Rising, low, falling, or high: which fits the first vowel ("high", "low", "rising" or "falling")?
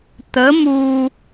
rising